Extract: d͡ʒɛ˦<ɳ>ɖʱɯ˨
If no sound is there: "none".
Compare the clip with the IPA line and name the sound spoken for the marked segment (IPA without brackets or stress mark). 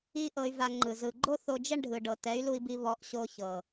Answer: ɳ